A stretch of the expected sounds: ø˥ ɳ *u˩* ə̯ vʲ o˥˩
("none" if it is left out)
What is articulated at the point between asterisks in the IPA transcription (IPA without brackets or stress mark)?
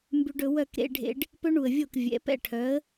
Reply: u˩